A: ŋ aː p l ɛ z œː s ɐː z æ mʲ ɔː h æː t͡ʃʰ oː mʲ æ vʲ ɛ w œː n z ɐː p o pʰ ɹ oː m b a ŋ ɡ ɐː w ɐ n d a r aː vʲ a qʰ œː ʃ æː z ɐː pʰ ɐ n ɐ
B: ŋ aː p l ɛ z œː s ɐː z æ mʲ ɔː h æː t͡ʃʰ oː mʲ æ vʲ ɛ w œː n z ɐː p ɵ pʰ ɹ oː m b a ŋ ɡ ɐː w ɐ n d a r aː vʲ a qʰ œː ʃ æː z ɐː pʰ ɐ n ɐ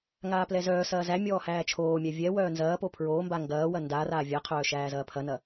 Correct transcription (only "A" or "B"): A